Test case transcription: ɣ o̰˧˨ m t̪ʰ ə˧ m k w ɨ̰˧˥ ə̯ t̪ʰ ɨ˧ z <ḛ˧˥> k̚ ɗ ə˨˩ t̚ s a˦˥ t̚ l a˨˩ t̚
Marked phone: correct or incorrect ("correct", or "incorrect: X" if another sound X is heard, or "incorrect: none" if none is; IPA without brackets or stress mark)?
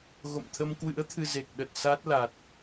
incorrect: e˨˩